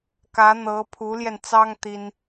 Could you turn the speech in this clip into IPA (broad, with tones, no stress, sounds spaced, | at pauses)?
k ä˧˥ n̪ ɤ˧˥ pʰ u˧˥ l j ɛ˧ n t͡s ɑ˥ ŋ t̪ i˥ n